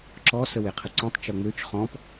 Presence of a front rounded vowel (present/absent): present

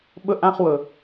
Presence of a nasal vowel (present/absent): present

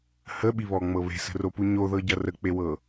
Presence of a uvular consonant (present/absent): absent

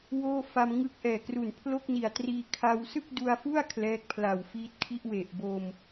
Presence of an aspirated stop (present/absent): present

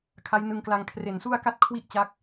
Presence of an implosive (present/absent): absent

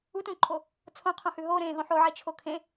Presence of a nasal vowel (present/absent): present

